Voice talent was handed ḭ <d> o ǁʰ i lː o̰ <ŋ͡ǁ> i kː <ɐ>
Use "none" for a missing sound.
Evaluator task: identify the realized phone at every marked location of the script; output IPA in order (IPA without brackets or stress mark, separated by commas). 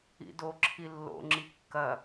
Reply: d, ŋ͡ǁ, ɐ